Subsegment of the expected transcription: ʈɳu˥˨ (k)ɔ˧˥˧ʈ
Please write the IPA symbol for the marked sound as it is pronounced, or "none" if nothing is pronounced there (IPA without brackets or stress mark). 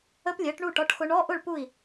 ʈ